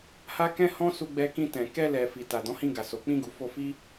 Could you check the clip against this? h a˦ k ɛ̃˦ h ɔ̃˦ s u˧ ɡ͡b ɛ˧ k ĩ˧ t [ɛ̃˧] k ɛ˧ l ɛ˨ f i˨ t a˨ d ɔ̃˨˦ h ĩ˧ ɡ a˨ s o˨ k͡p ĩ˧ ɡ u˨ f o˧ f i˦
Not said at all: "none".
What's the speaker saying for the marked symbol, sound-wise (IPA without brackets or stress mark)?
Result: ɛ̃˨